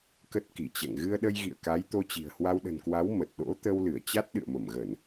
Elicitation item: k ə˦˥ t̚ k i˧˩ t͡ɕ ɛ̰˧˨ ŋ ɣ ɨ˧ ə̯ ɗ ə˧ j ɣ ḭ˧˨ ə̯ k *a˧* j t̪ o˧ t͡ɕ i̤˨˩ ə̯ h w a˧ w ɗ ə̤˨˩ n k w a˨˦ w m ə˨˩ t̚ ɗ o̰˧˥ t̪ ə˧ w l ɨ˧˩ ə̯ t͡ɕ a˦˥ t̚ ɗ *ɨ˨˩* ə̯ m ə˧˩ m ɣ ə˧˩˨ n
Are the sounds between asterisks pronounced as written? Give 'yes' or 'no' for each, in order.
no, no

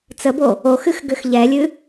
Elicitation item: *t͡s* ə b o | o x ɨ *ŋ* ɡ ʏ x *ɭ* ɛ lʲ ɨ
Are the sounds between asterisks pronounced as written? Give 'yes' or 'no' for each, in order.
yes, no, no

